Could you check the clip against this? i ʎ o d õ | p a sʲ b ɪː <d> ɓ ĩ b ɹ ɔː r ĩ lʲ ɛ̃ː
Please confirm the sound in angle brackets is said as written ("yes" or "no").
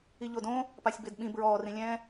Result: yes